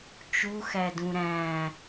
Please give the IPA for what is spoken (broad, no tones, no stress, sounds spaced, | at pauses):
t͡ʃ u x æ d ũ ɾ æ̃